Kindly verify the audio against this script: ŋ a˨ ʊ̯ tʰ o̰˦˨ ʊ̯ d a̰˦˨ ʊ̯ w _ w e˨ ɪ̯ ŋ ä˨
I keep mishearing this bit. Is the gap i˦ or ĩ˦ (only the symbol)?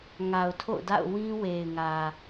ĩ˦